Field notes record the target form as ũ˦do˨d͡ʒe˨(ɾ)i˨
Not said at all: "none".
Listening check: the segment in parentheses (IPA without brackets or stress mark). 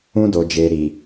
ɾ